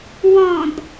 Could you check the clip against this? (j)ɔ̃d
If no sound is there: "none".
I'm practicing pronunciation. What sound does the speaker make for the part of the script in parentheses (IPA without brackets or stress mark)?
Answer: w